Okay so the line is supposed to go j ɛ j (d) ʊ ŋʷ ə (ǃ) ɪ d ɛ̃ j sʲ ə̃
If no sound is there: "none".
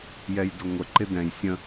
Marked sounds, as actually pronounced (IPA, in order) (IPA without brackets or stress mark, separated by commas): d, ǃ